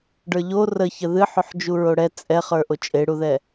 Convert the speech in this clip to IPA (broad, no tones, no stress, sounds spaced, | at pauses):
ɖ ə˞ ʎ o r ə ç ə ð ɨ ħ o ħ d͡ʒ u ɹ o ɽ ɛ t͡sʼ ɛ χ ə˞ ʔ o t͡ʃʼ e ɽ u ð ɛ